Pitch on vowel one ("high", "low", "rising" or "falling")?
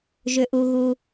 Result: high